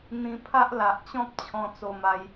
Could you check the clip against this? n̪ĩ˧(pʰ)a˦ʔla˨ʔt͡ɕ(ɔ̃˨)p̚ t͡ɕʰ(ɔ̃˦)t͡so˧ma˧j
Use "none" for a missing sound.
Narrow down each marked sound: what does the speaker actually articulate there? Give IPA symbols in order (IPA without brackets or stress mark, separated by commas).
pʰ, ɔ̃˦, ɔ̃˧